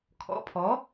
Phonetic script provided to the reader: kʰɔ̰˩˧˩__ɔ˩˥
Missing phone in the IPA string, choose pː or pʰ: pʰ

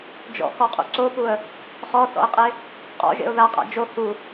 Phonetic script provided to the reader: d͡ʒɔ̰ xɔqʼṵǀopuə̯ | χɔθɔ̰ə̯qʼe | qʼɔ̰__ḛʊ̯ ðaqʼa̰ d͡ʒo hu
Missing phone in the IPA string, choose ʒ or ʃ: ʒ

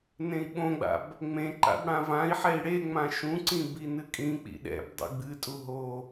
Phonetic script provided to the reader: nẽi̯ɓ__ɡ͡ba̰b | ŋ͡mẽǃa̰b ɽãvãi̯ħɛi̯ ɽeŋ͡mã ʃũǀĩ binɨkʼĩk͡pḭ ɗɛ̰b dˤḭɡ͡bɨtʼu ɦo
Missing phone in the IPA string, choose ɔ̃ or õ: õ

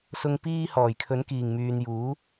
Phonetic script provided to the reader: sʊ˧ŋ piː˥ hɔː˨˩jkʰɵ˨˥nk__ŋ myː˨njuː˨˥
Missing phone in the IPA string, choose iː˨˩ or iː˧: iː˨˩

